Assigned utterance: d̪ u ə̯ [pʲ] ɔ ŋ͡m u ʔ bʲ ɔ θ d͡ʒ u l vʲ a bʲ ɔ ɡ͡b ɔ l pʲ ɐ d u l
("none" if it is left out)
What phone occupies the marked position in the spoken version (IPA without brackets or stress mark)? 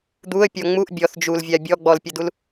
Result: pʲ